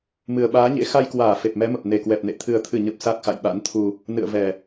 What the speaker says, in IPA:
m ɨ˨˩ ə̯ ɓ aː˨˦ ɲ ḛ˧˥ x a˧ j k w aː˧˩ f e˨˩ p̚ m ɛ˨˦ m ə˨˩ p̚ n e˧˩ k w ɛ˨˩ p̚ n ḛ˧˨ t̪ʰ ɨ˨˩ ə̯ t̪ʰ ɨ˧˩ ɲ ə˨˩ p̚ s a˦˥ k̚ x a̰˧˨ j ɓ a̰˧˥ n t̪ʰ u˧ | n ɨ̰˧˨ ə̯ v ɛ˨˩

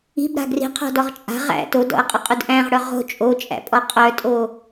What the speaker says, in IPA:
i̤ b ɾ a̤ ɡ r i̤ qʰ ɔ̤ d ɔ ʁ t͡ʃʼ a̤ ʁ æ̰ t o d ɔ̰ ɐ̯ qʼ ʊ qʼ u d ʔ æ̃ ʁ ɽ œ ʁ o̤ t͡ʃʼ o t͡ʃʼ æ̰ pʼ ɔ qʼ œ tʼ o

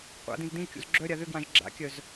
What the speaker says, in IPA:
qʷ a̰ d ĩ z d ĩ ʒ kʲ ṵ z ɡ͡ǁ œ ɾʲ a ð ʏ ɡ w ã ʒ ɡ͡ǁ a̰ kʲ œ z

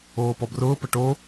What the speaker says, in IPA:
oː p ɔ b r ʊː p ə ʈ o

